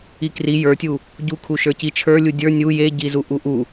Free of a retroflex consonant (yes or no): yes